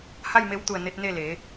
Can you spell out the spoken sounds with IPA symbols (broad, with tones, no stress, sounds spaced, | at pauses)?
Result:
h a˥˨ j m e˧ w t̪ u˧˩ ə̯ n e˧ t̚ n e˥˨ l eː˩˧